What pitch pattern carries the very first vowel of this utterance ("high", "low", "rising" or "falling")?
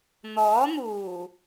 rising